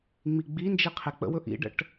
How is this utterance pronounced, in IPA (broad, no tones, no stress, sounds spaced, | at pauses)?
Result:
ŋ͡m i ɡ͡b i n d͡ʒ i qʰ e k͡p ə̰ w ɵ ʔ ḭ ɖ ə̰ ʈ